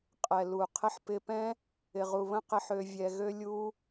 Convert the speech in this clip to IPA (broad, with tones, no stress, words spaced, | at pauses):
qʼɛ˨lu˨ qʰɪ˧ħpɪ˧pɛ̃˦ | ɪ˨ʁu˨βə̃˦ qɪ˦ħ ø˧vʲɛ˧ɣø˦ lʲu˦